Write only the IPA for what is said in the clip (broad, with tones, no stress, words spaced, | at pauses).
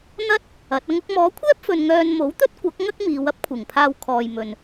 n̪ɐ˥t̚ | ɐ˨˥t̚ɐ˥ŋ ʊ˧k̚mɔː˨˥kʷʰɛː˥p̚fɵ˨n ŋœː˧n mo˨˥wt̪ɵ˥t̚kʷɐ˨˥k̚ ŋɐ˥k̚miː˨˧wɐ˥p̚kʷʰɪ˨˩ŋ pʰaː˧wkʰɔː˨j mɵ˨n